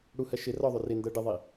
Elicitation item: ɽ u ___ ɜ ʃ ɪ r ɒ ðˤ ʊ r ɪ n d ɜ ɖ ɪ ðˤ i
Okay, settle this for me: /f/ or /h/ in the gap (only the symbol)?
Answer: h